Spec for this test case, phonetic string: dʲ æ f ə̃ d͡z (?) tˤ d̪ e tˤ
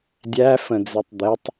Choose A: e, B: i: A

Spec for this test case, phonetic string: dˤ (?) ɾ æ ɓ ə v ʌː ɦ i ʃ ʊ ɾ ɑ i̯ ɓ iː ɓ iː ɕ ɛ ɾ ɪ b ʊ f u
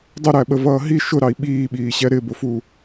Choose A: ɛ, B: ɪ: B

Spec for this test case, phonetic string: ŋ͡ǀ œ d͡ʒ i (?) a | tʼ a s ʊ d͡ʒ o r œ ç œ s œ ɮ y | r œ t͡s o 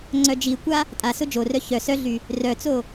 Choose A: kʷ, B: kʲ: A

